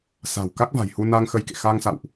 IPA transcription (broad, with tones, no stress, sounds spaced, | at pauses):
s a̤˨˩ w k a˦˥ k̚ v a̤˨˩ j h u˧ n a˧ ŋ x ə˧ j k ḛ˧˨ x a˧ ŋ s a̰˧˨ w ʔ